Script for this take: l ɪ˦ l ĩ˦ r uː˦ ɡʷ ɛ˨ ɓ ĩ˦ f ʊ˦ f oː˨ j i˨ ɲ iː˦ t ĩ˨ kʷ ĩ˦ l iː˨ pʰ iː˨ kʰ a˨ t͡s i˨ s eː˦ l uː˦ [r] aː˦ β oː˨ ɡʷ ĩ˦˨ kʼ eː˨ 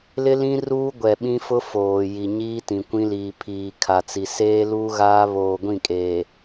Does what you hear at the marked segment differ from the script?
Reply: yes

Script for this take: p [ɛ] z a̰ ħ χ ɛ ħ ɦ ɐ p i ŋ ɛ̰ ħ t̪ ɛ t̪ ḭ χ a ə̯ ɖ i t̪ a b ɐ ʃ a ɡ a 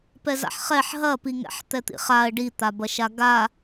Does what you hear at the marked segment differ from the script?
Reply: no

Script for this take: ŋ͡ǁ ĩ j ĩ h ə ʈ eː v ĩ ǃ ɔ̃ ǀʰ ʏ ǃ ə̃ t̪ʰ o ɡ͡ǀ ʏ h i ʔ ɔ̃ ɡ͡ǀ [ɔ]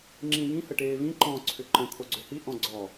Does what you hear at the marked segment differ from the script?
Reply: no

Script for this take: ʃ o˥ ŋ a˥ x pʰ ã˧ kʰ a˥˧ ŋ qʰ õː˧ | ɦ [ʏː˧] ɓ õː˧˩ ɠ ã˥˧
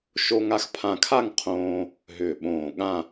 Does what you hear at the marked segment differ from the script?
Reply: yes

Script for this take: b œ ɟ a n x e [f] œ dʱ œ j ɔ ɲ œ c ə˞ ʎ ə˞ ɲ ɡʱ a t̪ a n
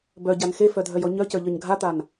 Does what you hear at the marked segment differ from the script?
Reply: no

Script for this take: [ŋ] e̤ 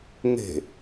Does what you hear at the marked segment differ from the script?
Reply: no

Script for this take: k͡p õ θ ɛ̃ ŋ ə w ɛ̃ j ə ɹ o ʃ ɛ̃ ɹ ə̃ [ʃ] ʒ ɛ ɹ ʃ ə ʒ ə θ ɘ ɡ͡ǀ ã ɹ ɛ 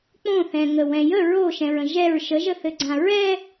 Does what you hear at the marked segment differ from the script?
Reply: yes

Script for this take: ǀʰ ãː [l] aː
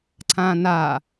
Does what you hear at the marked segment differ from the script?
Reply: yes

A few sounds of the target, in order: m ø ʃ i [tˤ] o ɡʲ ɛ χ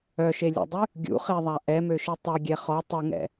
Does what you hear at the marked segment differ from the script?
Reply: no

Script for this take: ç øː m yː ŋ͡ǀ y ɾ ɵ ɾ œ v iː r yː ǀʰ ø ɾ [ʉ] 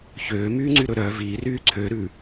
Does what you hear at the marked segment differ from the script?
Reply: no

